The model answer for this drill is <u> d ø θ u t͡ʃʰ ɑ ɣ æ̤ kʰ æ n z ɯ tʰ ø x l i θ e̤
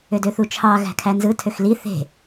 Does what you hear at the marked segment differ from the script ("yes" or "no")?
yes